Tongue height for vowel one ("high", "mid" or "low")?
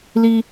high